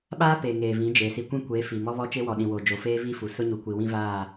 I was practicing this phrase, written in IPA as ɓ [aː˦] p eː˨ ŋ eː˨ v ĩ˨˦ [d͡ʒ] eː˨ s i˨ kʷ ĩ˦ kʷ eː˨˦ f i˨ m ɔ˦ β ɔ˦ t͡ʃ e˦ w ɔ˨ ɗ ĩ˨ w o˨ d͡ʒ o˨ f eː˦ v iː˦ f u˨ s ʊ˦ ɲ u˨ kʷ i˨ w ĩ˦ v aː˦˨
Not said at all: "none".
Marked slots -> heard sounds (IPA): aː˦, d͡ʒ

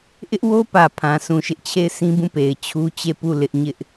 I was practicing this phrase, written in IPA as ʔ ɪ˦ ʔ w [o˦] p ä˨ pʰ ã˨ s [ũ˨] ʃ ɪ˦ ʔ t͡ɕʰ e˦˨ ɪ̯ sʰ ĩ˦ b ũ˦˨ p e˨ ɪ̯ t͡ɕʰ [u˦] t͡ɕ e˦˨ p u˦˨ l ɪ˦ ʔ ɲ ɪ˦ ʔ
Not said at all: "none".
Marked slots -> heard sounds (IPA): o˦, ũ˨, u˦

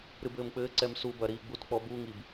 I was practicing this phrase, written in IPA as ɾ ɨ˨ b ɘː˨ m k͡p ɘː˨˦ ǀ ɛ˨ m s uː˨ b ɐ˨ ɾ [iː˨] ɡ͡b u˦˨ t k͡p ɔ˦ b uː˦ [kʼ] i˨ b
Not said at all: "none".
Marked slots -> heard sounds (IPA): iː˨, ŋ

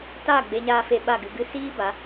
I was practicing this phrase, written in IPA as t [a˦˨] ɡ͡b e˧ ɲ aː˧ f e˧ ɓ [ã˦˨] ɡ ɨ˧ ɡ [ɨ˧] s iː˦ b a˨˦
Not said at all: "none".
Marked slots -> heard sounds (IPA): a˦˨, a˦˨, ɨ˦

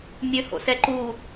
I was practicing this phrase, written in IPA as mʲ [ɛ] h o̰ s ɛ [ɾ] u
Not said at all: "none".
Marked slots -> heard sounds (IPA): ø, ǃ

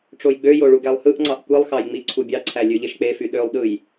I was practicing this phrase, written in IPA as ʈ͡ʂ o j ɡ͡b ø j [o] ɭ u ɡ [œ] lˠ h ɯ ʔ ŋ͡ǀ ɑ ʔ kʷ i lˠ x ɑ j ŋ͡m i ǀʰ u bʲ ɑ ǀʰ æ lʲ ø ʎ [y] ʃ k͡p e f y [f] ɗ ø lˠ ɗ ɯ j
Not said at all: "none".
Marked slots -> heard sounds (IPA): o, æ, e, none

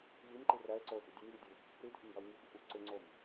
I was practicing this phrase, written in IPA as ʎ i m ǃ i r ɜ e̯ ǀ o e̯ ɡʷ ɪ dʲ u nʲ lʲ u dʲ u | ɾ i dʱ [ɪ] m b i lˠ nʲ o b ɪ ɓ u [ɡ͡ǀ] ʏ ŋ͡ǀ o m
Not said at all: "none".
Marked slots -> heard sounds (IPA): ɪ, ǀ

